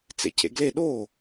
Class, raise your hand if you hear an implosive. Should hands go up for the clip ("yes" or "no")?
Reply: yes